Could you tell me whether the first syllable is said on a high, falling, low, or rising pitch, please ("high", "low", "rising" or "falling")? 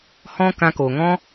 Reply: high